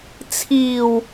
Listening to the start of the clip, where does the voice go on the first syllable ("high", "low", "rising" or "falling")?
low